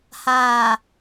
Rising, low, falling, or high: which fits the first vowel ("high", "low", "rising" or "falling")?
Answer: low